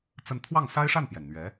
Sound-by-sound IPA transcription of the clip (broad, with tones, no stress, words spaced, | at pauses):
t͡sə˥˧n t̪ʰwɑ˥˩ŋsa˥ɪ̯ʂa˥˩npjɛ˩n n̪ɥɛ˧˥